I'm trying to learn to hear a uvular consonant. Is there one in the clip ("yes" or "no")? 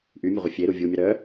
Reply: yes